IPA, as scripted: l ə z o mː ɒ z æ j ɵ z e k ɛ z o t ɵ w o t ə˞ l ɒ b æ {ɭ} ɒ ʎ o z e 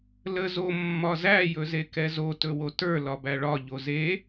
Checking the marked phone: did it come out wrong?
no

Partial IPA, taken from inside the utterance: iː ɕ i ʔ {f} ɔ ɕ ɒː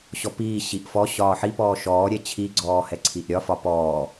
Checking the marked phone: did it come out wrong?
no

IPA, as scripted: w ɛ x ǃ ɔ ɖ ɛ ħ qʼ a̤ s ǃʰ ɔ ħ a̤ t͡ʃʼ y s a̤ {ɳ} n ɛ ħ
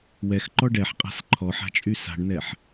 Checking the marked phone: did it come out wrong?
no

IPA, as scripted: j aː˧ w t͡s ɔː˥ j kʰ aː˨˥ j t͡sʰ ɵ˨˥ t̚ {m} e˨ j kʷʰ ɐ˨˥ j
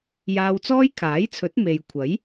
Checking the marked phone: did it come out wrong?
no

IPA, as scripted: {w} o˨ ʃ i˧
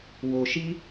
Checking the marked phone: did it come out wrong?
no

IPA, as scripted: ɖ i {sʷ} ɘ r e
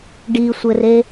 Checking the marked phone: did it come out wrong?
no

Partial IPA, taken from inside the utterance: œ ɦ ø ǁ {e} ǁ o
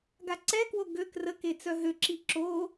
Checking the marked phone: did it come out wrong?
yes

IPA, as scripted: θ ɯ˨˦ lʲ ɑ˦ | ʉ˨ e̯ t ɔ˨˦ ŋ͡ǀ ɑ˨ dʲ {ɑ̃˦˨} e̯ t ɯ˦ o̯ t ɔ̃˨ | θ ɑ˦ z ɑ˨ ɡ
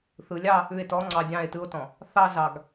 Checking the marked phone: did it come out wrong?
no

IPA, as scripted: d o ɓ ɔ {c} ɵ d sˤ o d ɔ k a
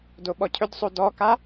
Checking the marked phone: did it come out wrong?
yes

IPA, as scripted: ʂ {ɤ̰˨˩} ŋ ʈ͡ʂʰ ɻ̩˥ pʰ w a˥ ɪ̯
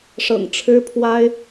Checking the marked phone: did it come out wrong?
no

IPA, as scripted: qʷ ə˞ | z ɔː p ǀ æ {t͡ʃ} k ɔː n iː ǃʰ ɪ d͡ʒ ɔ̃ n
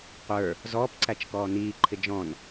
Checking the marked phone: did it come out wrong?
no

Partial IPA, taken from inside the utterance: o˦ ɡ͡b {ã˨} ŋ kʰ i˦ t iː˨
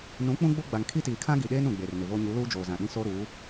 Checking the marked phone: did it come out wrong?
yes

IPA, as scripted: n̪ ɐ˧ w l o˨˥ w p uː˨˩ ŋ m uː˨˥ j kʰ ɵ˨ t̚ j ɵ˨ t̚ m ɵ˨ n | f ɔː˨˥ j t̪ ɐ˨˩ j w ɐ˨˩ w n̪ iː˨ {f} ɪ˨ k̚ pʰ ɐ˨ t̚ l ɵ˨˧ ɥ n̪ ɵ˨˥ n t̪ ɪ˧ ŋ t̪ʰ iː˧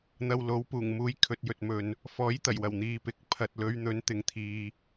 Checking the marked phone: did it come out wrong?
yes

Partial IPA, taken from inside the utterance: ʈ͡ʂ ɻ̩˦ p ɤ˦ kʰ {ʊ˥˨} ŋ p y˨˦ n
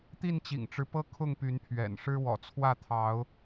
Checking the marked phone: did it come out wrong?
no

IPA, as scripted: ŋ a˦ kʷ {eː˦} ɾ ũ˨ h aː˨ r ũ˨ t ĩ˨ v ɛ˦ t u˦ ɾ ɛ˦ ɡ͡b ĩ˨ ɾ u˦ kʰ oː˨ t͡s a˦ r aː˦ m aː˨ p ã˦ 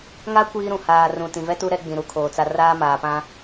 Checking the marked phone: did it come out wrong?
yes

